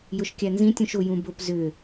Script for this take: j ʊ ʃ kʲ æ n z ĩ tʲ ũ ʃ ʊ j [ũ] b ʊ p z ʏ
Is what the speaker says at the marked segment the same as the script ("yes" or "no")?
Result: yes